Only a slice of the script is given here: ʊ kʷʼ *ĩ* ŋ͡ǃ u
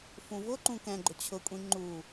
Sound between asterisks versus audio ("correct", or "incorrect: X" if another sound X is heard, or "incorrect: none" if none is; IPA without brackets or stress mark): correct